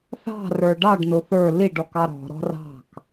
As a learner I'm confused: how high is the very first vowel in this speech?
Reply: low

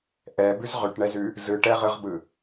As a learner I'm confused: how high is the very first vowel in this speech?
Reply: mid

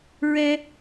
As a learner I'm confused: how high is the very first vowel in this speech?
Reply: mid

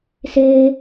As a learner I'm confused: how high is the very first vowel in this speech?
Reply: mid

